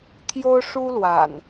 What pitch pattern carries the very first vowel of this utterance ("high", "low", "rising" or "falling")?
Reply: high